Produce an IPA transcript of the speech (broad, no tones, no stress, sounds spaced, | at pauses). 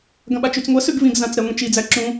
ɡ ɐ̃ ɓ a t͡ʃ y t͡s ŋʷ ɐ s ʉ ɡ v ĩ ɡ z ã t͡s ɾ ɛ ŋʷ ĩ t͡ʃ i d͡z æ ǁ ũ